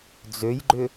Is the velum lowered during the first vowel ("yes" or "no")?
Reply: no